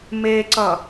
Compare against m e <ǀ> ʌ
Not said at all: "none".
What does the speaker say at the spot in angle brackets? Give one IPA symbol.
ǀ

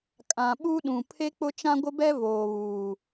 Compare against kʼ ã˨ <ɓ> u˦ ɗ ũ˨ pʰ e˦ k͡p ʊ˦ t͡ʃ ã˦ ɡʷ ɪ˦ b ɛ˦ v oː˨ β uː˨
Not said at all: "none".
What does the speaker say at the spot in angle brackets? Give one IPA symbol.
ɓ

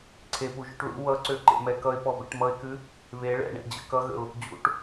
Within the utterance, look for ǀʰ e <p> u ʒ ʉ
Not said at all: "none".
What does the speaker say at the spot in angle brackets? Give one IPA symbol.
p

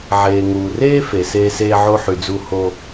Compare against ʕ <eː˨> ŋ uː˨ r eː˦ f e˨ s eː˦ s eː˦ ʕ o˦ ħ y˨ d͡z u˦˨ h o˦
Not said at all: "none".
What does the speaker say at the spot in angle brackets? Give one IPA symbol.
eː˨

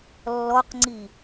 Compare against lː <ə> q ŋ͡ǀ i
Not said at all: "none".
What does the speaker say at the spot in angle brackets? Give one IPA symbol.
ɔ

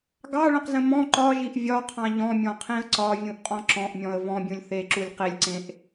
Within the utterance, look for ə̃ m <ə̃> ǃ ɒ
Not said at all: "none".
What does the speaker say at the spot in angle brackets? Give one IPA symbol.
ɔ̃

